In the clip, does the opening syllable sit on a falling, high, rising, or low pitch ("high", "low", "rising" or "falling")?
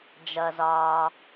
low